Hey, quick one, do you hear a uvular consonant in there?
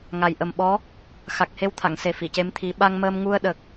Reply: no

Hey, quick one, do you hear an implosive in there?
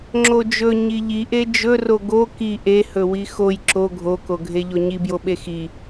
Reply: yes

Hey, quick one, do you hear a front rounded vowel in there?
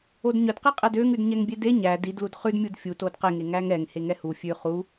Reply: yes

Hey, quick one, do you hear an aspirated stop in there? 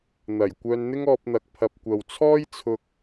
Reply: yes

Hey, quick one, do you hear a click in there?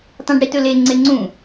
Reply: yes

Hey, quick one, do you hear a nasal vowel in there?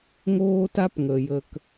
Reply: no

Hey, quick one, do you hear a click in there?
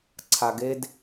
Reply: yes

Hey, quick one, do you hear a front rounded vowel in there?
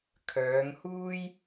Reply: yes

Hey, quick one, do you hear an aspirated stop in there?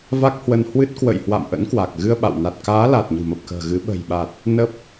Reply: no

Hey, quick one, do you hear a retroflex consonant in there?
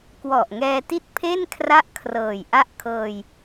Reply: no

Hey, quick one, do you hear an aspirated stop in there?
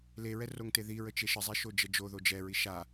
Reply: no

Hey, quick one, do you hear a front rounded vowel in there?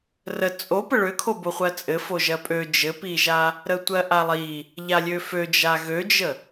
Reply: yes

